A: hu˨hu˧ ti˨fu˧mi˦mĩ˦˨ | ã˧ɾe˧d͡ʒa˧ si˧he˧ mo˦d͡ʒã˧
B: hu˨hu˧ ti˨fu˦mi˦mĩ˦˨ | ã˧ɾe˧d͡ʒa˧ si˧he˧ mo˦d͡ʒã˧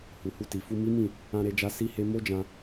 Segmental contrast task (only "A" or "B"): A